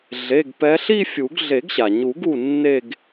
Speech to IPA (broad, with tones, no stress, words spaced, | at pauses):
ɮe˩˧˩ɡpɛ˨˦ɬi˥˧fʲu˨˩˦ɡ ɮe˨˩˦ɡɕa˩ɲu˨˩˦ɡ u˩˧˩ nːe˥˧ɡ